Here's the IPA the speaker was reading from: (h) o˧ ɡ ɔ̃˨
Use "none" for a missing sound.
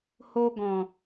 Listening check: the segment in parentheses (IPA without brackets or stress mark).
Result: h